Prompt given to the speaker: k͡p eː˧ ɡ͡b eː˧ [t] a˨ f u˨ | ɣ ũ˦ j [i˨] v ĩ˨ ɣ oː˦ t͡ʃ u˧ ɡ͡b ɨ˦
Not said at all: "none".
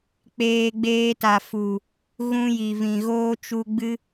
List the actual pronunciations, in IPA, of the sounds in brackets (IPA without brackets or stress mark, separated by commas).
t, i˨